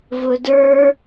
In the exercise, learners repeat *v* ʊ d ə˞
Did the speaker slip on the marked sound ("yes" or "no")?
no